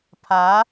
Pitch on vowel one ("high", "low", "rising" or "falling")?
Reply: rising